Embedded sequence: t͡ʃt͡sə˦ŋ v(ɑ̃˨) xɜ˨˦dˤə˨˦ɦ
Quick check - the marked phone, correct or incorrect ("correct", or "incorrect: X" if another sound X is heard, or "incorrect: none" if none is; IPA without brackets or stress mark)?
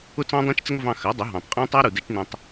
incorrect: ɑ̃˧